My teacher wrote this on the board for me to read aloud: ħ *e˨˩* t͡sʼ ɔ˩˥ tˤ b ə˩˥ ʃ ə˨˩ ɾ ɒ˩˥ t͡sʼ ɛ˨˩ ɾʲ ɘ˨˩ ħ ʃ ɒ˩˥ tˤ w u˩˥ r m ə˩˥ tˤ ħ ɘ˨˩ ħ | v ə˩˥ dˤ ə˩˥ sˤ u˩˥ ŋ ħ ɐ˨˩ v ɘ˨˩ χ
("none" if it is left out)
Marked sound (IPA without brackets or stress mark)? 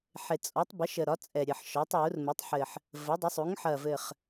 e˨˩